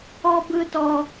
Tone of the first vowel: high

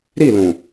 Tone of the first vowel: falling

